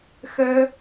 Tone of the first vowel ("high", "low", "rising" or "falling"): high